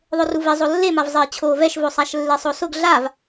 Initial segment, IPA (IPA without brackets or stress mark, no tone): ðˤ